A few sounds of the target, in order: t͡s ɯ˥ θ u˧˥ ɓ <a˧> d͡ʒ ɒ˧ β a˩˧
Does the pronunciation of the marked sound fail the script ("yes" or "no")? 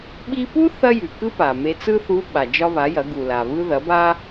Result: yes